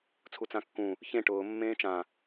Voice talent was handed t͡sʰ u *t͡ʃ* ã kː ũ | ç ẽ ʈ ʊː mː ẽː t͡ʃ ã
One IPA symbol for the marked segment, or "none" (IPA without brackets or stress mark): t͡s